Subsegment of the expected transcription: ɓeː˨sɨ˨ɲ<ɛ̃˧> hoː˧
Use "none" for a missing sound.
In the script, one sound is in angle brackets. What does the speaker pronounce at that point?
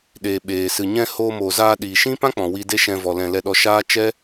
ɛ̃˧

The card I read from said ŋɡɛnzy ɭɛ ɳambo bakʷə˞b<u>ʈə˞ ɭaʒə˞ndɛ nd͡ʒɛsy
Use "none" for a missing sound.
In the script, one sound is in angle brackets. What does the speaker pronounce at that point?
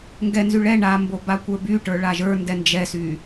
y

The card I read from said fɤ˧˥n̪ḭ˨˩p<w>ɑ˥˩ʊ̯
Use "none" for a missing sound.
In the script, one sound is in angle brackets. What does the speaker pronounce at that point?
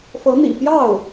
j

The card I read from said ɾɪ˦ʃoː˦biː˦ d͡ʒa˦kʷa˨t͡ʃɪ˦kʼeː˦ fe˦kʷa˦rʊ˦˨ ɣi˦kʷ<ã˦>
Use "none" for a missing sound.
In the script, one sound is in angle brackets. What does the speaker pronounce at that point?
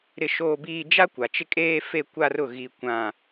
ã˦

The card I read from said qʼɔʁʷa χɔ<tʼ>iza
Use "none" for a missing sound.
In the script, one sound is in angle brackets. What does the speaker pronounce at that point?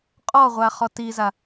t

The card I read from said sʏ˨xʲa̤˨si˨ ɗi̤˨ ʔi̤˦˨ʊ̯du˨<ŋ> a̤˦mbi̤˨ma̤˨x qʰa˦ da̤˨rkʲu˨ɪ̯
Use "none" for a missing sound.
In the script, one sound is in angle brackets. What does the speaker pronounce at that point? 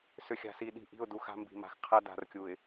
x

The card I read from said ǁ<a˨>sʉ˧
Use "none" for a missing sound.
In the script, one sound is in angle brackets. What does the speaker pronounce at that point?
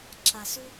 a˨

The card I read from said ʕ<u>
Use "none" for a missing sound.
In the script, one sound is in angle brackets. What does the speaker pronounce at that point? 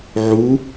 u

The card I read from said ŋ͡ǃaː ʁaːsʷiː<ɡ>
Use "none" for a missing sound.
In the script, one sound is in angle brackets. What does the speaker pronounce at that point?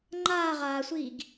ɡ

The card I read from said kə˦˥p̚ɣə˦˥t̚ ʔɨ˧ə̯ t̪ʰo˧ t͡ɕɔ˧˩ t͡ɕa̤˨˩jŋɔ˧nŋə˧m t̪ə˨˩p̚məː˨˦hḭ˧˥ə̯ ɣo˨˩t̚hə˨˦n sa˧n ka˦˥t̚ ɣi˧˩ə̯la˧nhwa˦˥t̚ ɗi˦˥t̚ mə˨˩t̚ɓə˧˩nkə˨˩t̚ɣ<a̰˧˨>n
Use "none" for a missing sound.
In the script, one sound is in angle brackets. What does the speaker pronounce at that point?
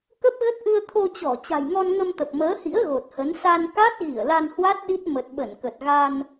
a˧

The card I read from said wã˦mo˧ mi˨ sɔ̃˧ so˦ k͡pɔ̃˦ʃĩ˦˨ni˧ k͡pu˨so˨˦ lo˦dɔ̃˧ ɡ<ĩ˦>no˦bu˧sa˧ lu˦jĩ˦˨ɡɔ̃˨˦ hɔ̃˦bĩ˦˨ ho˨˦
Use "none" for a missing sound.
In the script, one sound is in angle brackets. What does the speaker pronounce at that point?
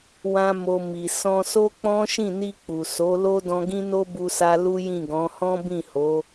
ĩ˦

